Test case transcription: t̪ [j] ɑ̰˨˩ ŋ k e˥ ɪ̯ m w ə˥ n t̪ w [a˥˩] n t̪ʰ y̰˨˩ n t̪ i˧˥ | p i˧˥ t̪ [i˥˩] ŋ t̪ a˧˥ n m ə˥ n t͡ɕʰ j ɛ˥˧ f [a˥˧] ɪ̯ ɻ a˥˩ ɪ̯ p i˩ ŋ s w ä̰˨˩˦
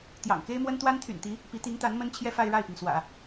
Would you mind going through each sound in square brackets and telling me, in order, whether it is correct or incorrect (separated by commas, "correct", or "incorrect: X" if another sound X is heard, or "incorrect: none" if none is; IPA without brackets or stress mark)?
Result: correct, incorrect: a˥, incorrect: i˧˥, correct